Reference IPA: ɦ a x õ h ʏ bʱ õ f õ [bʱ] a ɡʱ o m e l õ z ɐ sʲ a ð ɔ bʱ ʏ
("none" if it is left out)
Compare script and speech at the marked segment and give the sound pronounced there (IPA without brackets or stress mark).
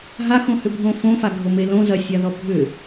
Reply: f